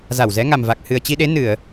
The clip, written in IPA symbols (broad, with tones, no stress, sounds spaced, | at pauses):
z a˧˩ w z ɛ˨˦ ŋ a˨˩ m v a˨˩ k̚ h ɨ˨˩ ə̯ t͡ɕ i˧ ɗ e˨˦ n ɨ˧˩˨ ə̯